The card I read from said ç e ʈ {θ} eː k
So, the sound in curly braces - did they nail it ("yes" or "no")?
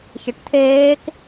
no